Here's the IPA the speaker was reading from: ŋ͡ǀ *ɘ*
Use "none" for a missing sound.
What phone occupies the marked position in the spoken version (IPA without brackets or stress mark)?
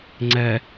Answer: ɛ